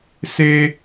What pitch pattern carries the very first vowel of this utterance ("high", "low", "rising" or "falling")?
high